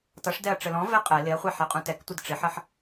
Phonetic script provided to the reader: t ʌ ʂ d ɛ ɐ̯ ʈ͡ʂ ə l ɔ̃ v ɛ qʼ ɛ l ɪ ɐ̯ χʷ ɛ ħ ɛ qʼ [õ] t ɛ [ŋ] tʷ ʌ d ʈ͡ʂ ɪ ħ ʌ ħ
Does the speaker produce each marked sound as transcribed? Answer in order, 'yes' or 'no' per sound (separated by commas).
no, no